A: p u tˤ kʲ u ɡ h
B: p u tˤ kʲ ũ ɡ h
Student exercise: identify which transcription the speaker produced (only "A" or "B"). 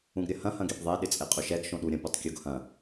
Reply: A